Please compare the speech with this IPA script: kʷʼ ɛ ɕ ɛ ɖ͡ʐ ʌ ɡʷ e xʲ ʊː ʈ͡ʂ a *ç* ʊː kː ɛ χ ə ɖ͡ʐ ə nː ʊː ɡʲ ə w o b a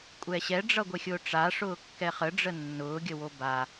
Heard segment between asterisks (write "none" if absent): ʂ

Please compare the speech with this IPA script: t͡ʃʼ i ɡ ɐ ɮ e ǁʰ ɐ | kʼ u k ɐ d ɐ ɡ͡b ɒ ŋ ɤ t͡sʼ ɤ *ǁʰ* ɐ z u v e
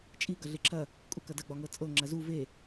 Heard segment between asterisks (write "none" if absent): ŋ͡ǁ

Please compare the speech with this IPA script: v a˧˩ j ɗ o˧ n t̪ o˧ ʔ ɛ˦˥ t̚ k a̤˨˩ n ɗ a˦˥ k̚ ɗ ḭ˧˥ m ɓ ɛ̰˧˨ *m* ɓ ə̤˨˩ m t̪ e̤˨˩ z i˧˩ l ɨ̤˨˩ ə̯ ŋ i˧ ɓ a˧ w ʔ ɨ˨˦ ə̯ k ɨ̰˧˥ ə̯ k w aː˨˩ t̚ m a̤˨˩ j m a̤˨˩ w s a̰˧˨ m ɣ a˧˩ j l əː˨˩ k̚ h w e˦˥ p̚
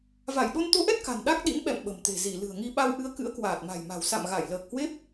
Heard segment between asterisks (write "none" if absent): m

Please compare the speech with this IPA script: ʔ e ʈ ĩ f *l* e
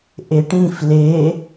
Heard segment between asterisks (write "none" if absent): l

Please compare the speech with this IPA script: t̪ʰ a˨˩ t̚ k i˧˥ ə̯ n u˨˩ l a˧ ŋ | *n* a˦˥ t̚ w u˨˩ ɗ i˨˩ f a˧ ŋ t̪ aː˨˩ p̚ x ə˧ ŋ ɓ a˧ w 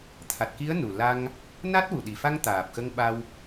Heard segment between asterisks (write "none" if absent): n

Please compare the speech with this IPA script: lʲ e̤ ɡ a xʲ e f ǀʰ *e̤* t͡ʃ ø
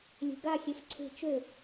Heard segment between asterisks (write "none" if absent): e̤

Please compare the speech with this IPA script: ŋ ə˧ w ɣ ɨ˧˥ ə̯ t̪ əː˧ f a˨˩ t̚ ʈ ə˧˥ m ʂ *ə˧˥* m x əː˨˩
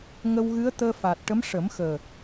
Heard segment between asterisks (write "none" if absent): ə˨˩˦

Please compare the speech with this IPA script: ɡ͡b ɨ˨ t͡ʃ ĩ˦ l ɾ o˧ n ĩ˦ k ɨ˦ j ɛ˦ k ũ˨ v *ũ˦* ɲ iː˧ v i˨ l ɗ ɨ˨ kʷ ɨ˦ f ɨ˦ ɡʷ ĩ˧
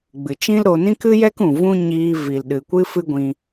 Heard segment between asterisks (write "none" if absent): ũ˦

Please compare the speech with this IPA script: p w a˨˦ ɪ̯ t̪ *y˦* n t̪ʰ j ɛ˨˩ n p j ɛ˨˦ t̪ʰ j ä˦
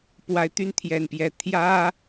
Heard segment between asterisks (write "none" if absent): y˦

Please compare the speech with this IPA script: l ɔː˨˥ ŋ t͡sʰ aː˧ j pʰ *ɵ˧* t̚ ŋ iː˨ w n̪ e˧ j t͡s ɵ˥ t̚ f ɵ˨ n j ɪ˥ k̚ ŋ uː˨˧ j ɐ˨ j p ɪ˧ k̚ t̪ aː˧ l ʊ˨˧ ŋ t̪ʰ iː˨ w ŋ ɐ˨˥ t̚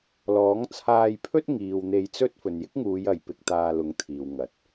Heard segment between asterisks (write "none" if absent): ɵ˥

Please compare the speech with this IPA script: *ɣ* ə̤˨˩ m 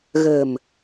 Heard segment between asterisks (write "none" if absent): ɣ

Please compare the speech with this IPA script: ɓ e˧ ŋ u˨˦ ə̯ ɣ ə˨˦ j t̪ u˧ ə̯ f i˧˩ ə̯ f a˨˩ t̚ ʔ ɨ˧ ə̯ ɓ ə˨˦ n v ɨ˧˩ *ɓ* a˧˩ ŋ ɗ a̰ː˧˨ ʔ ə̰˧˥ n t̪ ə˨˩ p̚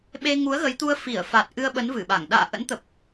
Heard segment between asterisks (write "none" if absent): ɓ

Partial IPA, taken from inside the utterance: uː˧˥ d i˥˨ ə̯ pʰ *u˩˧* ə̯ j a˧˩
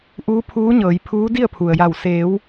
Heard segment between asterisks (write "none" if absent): u˩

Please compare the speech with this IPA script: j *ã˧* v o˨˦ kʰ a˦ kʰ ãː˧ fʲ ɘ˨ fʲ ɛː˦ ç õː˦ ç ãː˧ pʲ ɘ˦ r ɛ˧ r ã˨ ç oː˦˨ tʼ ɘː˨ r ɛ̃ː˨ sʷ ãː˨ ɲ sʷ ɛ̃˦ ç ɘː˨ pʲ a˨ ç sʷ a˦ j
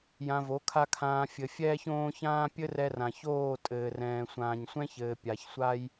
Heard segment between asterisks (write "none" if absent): ã˧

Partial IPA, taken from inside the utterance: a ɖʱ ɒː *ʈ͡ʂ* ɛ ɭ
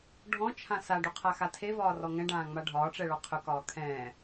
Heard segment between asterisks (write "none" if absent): ʈ͡ʂ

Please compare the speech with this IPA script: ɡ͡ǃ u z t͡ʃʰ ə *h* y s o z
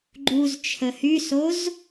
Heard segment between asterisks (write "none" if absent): h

